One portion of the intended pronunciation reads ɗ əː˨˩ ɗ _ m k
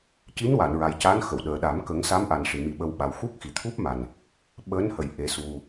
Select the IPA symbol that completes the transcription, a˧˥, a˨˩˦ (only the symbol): a˨˩˦